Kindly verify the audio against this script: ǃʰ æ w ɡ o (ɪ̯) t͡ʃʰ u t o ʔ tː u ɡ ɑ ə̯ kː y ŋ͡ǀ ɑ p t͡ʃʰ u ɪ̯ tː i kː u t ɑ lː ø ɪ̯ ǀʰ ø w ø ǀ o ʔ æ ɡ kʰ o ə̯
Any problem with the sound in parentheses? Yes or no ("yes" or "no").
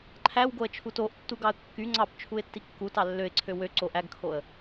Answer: yes